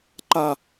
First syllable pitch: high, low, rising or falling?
low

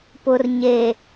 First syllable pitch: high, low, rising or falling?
low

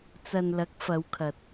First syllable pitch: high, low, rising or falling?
low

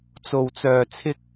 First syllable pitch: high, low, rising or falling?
low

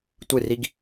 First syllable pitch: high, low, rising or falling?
falling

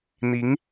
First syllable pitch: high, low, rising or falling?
rising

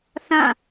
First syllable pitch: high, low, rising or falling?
falling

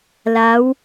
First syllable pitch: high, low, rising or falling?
rising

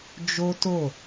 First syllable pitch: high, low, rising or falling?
high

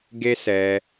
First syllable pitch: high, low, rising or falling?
high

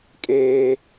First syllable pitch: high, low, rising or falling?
high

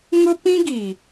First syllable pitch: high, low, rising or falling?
high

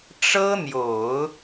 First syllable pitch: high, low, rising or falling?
high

